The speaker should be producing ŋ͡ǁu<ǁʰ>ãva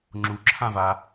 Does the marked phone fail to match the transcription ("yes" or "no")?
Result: no